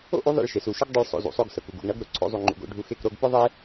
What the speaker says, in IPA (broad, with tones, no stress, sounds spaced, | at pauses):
o̰˦ ʔ u˨˦ ðˤ ḛ˦˨ ɭ ʃ e˨ s u˨ ʃ ʊ˦ ɡ dˤ ʊ˦ ɭ sˤ o̰˧ z ṵ˨ sˤ o˧ ɡ s ɤ˨ k u˨ ɡ ṵ˨ ɡ ɳ ʌ˨˦ ɡ ɾ ʊ˨ ǀʰ o̰˦ zˤ u˧ ŋ͡ǃ ṵ˧ ɡ o̰˧ ɖʱ u˧ x e˦˨ k ɾ o˧ ɡ p ʊ˦ ðˤ e˦